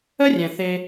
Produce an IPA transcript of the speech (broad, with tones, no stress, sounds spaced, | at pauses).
ə˦ rʲ ɛ̃˨ θ e˧